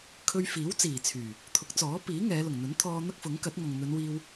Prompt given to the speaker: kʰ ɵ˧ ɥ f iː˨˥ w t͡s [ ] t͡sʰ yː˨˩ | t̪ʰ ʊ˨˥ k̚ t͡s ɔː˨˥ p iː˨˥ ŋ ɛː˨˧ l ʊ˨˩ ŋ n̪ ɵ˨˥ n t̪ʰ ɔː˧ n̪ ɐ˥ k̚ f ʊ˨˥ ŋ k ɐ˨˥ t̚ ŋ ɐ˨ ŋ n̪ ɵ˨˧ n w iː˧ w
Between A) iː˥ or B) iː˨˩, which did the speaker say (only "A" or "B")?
B